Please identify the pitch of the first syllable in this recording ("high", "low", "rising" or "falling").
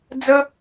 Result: high